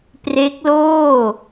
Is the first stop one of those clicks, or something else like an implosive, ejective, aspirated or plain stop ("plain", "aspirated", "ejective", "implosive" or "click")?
plain